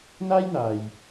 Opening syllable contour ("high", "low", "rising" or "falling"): high